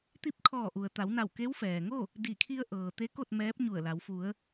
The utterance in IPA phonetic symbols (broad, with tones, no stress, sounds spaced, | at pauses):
t̪ i˧˥ p̚ kʰ ɔː˧˩ ʔ u˩ ə̯ t̪ a˩˧ w n a˧˩ w k e˧˥ w f ɛː˩ ŋ o˥˨ | d i˧˩ kʰ i˧ ə̯ ʔ ɤː˩ t̪ e˧˥ k o˥˨ t̚ m ɛː˧˥ p̚ ɲ u˧˩ ə̯ l a˩˧ w f u˩˧ ə̯